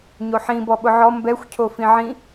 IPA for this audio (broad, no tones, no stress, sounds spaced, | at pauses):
ɲ o ħ ĩ b ɔ ɓ ʊ ʕ ɔ m b ɛ xʷ cʰ o f ĩ ʕ ĩ